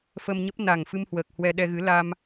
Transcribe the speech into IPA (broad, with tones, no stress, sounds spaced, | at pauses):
f əː˧ m ɲ ə˦˥ p̚ n a˨˩ ŋ f ɨ˧ m h w əː˨˩ k̚ h w ɛ˧ ɗ ɛ˧ ɣ ɨ˨˦ l a˧ m